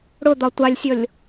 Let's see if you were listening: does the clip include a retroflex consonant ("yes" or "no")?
yes